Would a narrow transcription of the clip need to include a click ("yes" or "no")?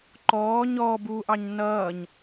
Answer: yes